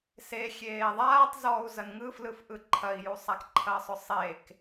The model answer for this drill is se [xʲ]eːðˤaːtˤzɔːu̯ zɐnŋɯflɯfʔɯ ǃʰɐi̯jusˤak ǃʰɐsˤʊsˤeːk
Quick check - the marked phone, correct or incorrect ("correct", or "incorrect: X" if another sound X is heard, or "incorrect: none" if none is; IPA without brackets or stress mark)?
correct